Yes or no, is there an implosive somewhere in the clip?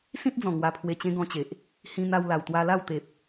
no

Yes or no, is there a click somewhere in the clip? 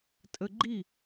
yes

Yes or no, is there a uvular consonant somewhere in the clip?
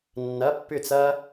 no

